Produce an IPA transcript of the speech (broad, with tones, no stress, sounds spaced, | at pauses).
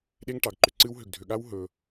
ɗ e˦ ŋ ʈ ɑ˨ ɡ ǃ ʏ˨ ǀ ɨ˦ w ɦ ʏ˨ ɡ dʱ ʏ˨ ɠ a˦ w ɦ ɵ˧